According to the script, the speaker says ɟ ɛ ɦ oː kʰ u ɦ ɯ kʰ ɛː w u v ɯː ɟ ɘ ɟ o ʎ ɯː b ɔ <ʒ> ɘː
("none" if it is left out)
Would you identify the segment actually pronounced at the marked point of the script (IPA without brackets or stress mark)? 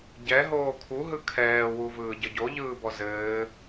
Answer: z